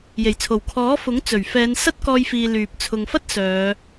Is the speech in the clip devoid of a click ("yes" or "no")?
yes